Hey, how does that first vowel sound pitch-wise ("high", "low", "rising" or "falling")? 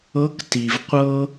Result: rising